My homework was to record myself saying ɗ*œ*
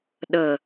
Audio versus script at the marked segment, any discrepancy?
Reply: yes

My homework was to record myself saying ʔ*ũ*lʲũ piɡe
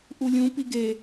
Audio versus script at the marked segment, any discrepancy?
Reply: yes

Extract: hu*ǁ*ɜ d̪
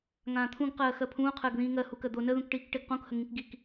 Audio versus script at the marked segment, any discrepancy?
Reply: yes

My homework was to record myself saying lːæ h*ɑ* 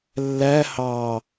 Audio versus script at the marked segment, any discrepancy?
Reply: no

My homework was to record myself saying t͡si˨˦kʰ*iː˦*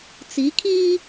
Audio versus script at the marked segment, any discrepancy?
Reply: no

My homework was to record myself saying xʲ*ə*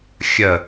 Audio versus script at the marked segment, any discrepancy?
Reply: no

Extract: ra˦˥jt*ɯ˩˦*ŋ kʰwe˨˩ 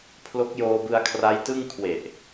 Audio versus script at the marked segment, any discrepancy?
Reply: yes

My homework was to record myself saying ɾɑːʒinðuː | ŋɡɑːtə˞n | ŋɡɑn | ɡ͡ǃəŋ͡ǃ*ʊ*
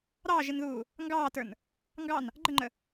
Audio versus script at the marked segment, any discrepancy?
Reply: yes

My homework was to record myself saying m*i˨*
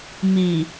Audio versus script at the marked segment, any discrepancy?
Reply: no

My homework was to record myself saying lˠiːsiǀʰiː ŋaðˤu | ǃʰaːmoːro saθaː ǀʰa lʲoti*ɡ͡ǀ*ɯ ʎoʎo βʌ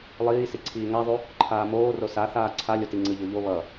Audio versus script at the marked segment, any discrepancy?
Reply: yes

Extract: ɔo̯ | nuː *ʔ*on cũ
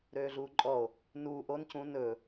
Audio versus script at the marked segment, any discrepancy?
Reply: no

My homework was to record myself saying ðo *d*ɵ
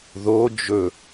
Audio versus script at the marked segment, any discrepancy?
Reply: yes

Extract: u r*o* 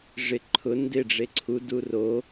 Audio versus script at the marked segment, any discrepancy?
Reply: no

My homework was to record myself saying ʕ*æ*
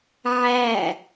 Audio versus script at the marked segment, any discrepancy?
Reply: no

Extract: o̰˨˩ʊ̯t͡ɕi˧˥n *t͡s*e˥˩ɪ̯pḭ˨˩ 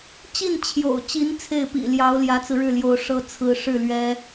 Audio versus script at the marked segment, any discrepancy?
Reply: yes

